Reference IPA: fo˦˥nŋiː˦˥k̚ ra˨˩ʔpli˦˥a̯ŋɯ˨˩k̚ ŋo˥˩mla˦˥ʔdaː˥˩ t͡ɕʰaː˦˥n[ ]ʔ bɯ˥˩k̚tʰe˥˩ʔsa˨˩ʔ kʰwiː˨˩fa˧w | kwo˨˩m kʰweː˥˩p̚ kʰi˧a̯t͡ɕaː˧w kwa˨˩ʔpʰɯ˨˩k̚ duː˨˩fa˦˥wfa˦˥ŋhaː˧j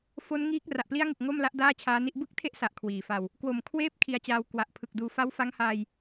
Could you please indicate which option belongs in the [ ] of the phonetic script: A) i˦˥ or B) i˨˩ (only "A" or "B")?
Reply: A